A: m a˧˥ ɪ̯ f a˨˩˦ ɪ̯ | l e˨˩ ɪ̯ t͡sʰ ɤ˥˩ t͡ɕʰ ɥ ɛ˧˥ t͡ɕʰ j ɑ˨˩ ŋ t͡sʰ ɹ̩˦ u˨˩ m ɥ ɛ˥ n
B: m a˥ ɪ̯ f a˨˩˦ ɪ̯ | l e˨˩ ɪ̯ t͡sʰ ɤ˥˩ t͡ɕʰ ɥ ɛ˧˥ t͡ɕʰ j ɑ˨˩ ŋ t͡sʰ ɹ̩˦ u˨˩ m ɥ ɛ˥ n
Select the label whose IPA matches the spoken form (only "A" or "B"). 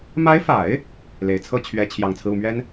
A